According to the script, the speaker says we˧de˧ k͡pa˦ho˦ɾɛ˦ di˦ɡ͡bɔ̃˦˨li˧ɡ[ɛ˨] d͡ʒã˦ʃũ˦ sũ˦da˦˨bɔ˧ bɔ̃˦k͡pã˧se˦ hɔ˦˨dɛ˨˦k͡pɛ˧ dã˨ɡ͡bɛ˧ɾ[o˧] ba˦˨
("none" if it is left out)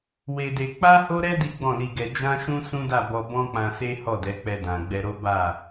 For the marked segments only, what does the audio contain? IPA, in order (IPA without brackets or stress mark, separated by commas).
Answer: ɛ˧, o˦